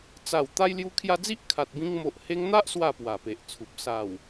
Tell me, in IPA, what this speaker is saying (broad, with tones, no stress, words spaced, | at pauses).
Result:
t͡sa˨˩w t̪a˧j lju˧kʰja˧d͡zi˦ʔ kʰa˨t̚bĩ˧ŋ mo˨ʔ he˧ŋn̪a˦ʔ swa˥˧pwa˨˩pe˨ʔt͡sʰu˨p̚ sa˨˩w